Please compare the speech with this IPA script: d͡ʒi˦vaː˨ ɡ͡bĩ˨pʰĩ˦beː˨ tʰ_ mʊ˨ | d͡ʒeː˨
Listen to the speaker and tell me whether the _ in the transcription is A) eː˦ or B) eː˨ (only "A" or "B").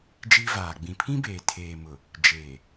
B